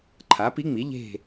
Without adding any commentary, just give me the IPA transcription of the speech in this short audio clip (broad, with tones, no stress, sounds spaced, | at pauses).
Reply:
ǃʰ a˩˥ p i˧˥ ŋ͡m i˩˥ ʎ e̤˦˨